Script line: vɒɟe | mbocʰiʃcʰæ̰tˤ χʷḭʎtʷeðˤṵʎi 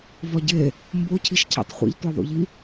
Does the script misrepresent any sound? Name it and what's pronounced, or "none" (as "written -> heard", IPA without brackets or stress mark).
none